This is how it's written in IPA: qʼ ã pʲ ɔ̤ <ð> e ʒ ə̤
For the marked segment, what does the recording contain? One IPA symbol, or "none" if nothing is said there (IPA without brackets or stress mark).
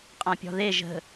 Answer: ð